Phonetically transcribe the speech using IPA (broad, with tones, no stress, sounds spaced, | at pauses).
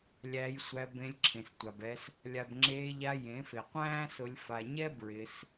lʲ æ˧ j sʷ æ˧ b ẽ˧ lʲ ǁʰ ẽ˨ s tʷ a˨ b ɛ˧ s | lʲ a˨ b ŋ͡ǁ eː˧ ʎ a˧ j ẽ˨˦ f e˨ qʷ æ̃ː˦ s ʊ˧ lʲ f a˨ ɲ ɛ˦ b ɹ ɪ˧ s